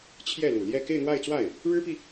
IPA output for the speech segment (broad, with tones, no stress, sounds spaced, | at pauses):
t͡ɕʰ j ɛ˥˩ l u˨˩ l j ɛ˥˧ k e˥˧ ɪ̯ n̪ w a˥˧ ɪ̯ t͡s w a˥˩ ɪ̯ | ɻ ɻ̩˥ p i˨